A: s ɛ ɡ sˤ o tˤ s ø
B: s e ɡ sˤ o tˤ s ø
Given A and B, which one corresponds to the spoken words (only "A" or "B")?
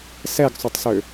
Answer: A